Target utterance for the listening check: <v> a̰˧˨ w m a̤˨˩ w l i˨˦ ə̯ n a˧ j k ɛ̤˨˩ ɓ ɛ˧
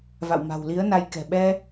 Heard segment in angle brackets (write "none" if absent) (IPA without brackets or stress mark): v